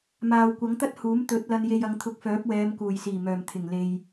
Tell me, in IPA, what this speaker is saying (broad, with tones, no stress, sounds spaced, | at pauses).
m aː˨ w kʷ ɐ˨˥ ŋ t̪ ɐ˥ t̚ h uː˨˥ m t̪ ɵ˨˥ t̚ l ɐ˧ n j e˧ j ɐ˨˧ ŋ t̪ʰ ʊ˨˥ k̚ f œː˨˥ p̚ w ɛː˨˧ m k uː˨˩ j s iː˨˩ m œː˨˩ m t̪ʰ ɪ˨˩ ŋ l e˨ j